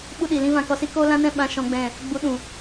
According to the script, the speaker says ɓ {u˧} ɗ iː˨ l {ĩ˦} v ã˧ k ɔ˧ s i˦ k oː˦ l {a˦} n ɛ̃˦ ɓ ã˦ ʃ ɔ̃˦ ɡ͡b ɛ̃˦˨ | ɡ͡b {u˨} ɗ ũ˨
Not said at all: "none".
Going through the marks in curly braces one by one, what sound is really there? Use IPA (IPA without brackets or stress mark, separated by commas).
u˧, ĩ˧, ã˦, u˨˦